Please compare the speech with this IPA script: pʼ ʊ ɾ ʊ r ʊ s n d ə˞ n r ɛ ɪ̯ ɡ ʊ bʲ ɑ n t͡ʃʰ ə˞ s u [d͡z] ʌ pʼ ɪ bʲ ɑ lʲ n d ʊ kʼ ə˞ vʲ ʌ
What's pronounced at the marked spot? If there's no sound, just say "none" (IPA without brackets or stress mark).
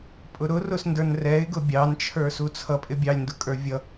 t͡sʰ